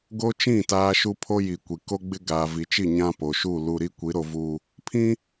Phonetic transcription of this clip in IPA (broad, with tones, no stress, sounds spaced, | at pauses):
ɡ o˦ t͡ʃ ĩ˦˨ t aː˦ ʃ u˦ pʰ o˦ j i˨ kʷ i˨ k o˦ ɡ͡b ɪ˦ ɡ aː˨ v i˨ t͡ʃ i˦˨ ɲ ã˦ p o˨ ʃ u˦˨ l u˨ ɾ i˦ kʷ i˨˦ ɾ o˨ v uː˨ | pʰ ĩ˦